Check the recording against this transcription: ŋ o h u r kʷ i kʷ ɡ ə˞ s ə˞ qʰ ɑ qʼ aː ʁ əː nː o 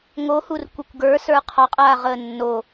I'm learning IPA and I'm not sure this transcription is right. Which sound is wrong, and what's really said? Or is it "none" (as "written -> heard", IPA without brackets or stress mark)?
none